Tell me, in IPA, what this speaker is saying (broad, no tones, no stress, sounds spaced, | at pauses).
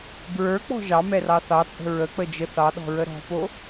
b ɹ ə˞ k͡p ɔ̤ ʒ ɑ m ɛ r ɑ θ ɑ t͡sʼ ə̤ ɹ ə k͡p ə d͡ʒ ə θ ɑ ɗ ɔ̤ ɹ ə ɾ ɔ̤ p o